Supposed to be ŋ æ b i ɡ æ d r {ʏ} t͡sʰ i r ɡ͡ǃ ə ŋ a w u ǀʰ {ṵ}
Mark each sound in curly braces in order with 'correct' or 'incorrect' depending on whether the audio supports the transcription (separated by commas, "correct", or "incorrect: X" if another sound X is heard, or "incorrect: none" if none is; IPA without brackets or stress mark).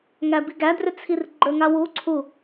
correct, incorrect: u